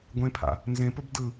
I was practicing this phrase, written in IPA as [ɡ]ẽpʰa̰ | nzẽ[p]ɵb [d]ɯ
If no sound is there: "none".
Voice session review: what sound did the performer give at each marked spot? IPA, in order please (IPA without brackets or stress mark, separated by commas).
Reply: ɡʷ, p, d